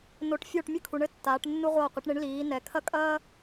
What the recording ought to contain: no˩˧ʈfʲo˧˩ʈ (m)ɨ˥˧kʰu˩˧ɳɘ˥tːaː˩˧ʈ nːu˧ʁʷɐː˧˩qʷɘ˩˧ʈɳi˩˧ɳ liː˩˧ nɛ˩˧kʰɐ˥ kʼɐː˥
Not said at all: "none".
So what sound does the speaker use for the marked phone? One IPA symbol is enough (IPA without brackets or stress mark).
mʲ